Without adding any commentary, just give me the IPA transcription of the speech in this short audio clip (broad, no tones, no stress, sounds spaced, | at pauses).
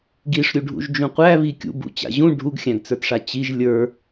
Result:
ɡ i ʂ ɾʲ u ɖʱ ṵ ʒ d͡ʒ ũ qʷ æ β i kʲ ṵ b ṵ t͡ɕ a̰ ʑ ũ ɖʱ u ɡ xʲ æ̃ ɡ t͡s ə˞ t ʂ a t͡ɕ i ʒ lʲ ə˞